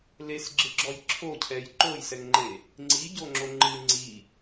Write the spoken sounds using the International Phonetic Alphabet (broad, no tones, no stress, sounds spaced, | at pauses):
l e s ɡ͡ǁ ɨ ɡ͡ǁ ɔ j ǁʰ o cʰ ɛ j ǃ o j s ɛ ŋ ŋ͡ǃ e | ŋ͡ǀ i ɟ o ŋ͡ǁ o ŋ͡ǃ ɨ ŋ͡ǀ i